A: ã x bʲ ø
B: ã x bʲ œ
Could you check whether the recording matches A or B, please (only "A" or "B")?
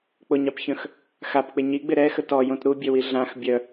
B